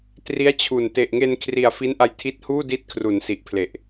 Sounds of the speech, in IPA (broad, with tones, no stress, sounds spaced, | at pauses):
t r i˦˥ a̯ t͡ɕʰ u˨˩ n t e˨˩ ʔ ŋ e˧ n kʰ r i˨˩ a̯ f i˦˥ n ʔ a˧ j tʰ i˦˥ t̚ h uː˥˩ d i˦˥ t̚ kʰ r u˩˦ n s i˨˩ ʔ pʰ l e˨˩ ʔ